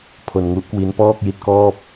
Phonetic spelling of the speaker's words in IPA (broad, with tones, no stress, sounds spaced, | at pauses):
pʰ o˧ n ŋ u˦˥ ʔ k w i˦˥ n p ɔː˥˩ k̚ j i˦˥ t̚ k ɔː˥˩ p̚